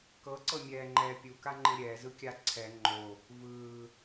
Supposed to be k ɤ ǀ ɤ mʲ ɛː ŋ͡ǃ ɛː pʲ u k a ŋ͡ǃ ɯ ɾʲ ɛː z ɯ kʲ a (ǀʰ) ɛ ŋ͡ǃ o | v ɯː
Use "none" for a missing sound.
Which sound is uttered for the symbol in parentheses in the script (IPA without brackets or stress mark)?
ǀʰ